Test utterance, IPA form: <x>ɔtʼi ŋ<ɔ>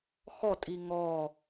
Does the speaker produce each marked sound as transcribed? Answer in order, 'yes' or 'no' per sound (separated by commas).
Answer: yes, yes